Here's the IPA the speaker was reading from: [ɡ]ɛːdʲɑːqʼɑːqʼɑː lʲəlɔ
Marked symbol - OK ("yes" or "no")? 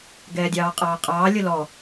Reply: yes